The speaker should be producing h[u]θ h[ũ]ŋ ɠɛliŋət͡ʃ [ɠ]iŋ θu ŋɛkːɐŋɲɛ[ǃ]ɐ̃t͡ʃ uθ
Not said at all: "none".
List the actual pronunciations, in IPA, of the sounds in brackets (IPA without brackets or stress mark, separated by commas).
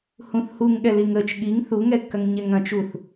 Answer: ũ, u, ɠ, ŋ